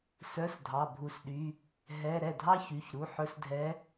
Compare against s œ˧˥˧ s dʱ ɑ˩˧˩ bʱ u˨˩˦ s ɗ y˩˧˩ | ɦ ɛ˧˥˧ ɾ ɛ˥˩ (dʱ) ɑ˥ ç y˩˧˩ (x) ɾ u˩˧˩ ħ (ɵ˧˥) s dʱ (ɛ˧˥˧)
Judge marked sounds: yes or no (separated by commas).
yes, no, yes, no